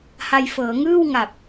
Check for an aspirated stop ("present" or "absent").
absent